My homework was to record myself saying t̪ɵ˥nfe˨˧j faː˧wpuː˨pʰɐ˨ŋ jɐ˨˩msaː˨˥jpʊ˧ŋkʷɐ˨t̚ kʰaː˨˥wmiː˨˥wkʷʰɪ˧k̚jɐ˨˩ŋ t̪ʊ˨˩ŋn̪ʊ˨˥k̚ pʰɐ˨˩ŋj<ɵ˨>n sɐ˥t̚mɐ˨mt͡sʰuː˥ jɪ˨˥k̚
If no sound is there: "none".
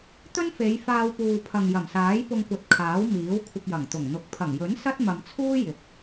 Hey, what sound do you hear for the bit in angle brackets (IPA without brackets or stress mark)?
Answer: ɵ˨˥